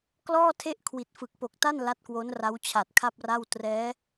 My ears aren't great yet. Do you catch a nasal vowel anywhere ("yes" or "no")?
no